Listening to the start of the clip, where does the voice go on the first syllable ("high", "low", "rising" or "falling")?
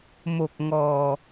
low